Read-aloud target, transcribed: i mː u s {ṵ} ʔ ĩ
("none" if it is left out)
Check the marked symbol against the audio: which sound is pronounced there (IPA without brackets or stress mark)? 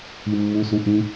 u